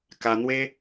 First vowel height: low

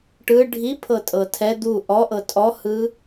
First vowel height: high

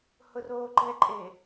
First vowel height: high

